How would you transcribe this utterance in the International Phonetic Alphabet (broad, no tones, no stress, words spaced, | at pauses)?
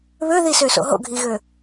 βøðisøso̰ ɦo̰ɡʱiɣø